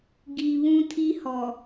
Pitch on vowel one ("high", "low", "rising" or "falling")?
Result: low